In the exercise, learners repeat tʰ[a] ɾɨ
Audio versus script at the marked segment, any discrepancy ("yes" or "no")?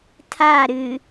no